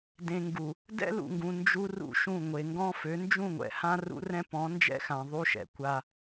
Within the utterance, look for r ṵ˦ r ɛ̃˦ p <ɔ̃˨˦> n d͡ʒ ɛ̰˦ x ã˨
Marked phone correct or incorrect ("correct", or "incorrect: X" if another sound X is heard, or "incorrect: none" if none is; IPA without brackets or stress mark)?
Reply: correct